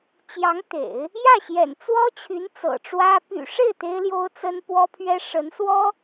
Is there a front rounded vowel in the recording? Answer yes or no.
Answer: yes